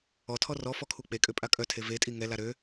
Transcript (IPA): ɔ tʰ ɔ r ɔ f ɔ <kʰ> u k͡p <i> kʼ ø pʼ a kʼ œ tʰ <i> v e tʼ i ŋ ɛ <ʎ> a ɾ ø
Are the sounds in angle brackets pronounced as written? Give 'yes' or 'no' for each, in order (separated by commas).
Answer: yes, no, no, no